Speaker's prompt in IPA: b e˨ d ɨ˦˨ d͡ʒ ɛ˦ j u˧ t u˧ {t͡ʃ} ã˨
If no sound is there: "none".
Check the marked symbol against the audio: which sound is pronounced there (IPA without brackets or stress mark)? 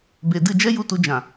d͡ʒ